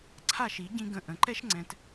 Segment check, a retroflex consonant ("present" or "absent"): absent